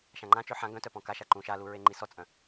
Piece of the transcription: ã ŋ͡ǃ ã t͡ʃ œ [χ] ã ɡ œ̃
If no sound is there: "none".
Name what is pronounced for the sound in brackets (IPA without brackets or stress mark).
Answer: ħ